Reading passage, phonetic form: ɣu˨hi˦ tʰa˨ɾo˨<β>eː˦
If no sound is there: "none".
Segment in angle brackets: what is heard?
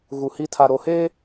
h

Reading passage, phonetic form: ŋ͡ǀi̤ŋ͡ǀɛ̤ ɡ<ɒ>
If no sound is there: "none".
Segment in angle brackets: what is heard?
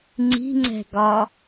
ɒ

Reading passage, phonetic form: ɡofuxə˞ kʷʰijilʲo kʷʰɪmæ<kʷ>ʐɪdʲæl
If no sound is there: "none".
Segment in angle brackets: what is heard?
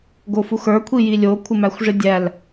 xʷ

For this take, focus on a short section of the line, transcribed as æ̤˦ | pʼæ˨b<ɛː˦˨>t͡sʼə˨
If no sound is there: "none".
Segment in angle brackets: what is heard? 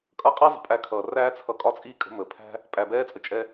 ɛː˧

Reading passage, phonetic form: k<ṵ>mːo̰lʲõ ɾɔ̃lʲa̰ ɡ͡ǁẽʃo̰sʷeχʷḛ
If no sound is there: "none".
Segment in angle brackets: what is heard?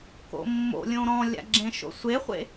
o̰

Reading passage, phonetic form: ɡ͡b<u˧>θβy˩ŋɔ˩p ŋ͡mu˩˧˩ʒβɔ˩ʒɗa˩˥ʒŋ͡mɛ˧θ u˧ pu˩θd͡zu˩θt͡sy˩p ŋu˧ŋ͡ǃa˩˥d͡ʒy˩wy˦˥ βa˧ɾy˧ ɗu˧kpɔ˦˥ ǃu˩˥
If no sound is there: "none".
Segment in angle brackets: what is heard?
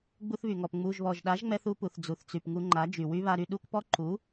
u˧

